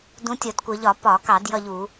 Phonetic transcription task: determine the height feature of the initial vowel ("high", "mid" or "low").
high